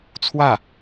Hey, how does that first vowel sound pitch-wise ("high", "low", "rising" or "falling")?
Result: falling